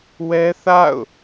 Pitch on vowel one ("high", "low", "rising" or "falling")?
high